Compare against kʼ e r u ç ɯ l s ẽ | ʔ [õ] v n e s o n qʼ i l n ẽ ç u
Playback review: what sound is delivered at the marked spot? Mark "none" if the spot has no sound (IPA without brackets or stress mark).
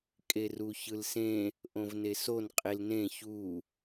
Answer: õ